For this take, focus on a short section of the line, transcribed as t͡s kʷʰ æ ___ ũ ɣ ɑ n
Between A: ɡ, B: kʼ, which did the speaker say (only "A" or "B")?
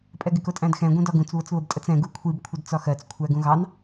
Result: A